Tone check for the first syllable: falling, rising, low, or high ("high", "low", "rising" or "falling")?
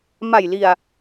low